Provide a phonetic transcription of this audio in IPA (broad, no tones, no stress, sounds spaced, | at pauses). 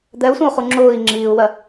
d̪ ɛ u̯ sʷ ɛ̃ u̯ χ u ŋ͡ǁ ʊː i̯ ŋ͡ǁ iː u̯ w ɜ